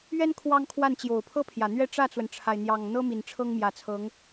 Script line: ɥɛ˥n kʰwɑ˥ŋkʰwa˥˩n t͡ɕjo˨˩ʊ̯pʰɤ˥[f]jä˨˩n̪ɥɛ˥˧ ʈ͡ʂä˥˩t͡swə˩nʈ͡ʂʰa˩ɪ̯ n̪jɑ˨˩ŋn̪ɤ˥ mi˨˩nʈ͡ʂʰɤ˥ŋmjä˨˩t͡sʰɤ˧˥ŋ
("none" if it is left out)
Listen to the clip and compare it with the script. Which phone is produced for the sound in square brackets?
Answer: pʰ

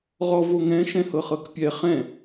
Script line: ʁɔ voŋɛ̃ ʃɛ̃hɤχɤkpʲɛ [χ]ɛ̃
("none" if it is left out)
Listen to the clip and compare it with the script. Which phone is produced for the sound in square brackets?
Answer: χ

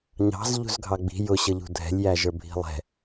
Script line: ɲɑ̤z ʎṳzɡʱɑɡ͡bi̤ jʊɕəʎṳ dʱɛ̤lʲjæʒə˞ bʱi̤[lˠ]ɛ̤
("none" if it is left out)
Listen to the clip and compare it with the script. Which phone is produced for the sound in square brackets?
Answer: lˠ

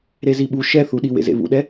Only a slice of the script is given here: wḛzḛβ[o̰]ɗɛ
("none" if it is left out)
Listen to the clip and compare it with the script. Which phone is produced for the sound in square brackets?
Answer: ṵ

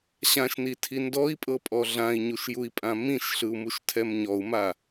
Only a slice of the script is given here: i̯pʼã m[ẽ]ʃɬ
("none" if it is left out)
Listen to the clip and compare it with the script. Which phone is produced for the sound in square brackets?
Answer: ĩ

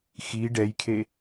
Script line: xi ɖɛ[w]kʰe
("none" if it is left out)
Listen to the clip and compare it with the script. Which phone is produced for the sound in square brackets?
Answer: j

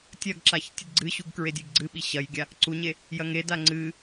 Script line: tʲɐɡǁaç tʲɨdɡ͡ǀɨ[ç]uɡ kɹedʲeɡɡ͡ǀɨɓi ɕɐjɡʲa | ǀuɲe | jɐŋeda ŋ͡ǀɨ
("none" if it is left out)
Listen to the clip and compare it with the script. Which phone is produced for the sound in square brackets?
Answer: ɕ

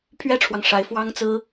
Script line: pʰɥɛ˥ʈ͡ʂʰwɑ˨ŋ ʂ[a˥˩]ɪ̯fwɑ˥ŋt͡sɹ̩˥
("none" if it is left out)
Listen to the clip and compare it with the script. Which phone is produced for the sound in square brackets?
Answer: a˧˥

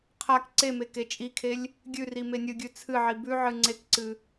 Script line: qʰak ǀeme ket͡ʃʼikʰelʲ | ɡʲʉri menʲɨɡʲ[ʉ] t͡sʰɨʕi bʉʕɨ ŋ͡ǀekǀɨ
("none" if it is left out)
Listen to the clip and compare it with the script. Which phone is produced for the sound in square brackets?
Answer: ʉ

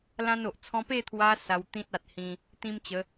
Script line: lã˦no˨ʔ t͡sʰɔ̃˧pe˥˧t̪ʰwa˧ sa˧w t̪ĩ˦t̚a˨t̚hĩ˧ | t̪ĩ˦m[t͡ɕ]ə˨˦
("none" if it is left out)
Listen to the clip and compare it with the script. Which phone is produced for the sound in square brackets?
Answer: t͡ɕ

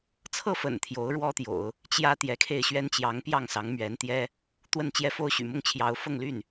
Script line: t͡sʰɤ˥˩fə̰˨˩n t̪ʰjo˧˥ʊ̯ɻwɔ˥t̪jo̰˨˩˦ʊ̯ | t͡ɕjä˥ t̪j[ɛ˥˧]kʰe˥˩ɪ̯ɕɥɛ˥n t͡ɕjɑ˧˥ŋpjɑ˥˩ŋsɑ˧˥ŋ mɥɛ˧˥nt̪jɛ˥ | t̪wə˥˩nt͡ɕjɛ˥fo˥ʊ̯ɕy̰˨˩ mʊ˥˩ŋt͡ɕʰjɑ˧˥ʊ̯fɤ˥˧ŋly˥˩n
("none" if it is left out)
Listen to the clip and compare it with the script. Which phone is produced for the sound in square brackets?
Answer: ɛ˧˥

